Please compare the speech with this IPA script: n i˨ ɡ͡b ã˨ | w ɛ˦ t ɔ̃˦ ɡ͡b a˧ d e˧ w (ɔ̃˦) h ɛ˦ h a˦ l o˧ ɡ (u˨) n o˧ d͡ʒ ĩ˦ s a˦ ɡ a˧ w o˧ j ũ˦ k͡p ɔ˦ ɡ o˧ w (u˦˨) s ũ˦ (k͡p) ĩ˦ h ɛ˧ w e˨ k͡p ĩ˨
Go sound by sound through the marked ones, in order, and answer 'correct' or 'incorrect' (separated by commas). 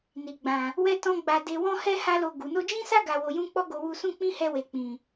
correct, correct, incorrect, correct